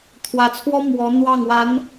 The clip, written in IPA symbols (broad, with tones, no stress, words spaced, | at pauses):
t̪ʰwä˧˥t͡sʰwɔ˥ mwɔ˧˥ n̪wɑ˥˩ŋwa˧˥n